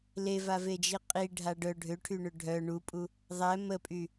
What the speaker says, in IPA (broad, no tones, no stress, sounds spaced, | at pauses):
l e v a v e d͡ʒ i qʼ i ɖʱ a ɖ œ ɖʱ ø ʈʰ y ɳ ø ɖʱ œ ɳ u pʼ u | ðˤ ɛ m ə pʼ y